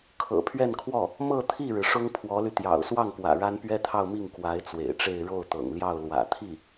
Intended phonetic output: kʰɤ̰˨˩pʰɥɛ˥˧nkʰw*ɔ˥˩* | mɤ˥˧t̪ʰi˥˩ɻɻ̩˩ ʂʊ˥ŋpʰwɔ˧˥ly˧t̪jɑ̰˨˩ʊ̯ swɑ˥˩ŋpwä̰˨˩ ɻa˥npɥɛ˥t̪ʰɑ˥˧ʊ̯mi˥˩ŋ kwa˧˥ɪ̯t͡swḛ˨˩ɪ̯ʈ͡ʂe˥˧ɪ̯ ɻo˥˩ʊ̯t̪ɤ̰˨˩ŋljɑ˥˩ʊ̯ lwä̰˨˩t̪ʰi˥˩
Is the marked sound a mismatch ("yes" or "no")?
no